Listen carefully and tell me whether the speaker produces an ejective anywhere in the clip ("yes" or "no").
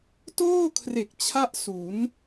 no